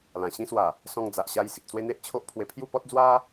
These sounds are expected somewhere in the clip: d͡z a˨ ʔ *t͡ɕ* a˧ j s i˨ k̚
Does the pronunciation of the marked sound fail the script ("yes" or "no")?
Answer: yes